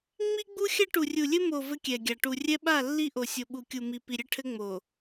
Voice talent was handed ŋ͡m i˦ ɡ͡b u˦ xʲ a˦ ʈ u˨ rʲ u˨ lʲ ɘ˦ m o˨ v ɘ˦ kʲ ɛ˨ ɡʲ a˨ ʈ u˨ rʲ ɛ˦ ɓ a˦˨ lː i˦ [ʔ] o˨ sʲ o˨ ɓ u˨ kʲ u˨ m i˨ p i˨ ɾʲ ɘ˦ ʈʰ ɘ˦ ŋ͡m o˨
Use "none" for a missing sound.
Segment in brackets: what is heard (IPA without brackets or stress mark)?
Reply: ʔ